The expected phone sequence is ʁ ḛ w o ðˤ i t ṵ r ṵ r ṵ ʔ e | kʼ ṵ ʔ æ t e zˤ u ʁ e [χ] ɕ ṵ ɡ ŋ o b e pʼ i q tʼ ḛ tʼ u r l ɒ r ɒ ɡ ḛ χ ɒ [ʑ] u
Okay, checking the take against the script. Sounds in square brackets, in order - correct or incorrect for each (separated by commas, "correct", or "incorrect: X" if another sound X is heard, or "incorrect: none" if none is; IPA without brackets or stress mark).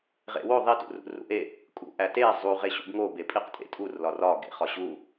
incorrect: none, correct